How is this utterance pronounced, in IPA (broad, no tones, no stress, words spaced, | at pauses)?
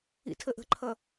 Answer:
ḭtʰəʔə̤ǃʰʌ